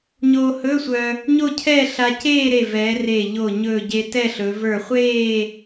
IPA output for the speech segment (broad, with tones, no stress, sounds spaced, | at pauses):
ɲ oː˧ h ɵː˧˥˧ sʷ œ˧ | ɲ o˥˧ cʰ ɛː˥˧ ɬ a˧ c eː˥˧ ɾ e˧˩ v ɛː˩˧ r e˧˩ ʎ o˧˩ ɲ ɵː˧˩ ɟ e˧ t ɛ˥˧ ɬ ɵ˩˧ v ə˞˧˩ χʷ eː˥˧